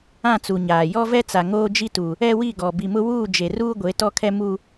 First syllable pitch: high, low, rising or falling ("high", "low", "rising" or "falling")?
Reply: falling